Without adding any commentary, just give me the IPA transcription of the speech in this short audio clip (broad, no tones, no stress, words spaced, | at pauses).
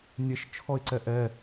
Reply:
nʲeʃt͡ʃʰɔɪ̯ǀɛ ʔɛ